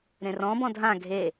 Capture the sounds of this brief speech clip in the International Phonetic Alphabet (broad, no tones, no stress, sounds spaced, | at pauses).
ɾ ẽ r ɔ̃ b ɔ̃ dʱ ã ɡʱ e